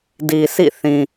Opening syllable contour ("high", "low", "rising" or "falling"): low